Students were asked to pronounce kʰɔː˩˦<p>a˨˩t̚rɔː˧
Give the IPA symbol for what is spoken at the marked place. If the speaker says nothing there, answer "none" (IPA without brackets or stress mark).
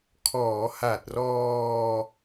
h